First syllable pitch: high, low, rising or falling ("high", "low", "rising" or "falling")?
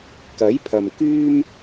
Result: rising